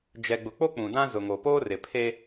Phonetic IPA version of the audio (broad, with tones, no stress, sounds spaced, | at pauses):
d͡ʒ ɛ˨ ɡ͡b ʊ˨ k͡p o˦ k͡p ũ˨ d ã˦ z ʊ˨ ŋ o˨ p oː˦ r ɪ˨ pʰ e˦